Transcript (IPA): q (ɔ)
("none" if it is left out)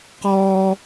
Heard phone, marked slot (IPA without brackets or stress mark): ɔ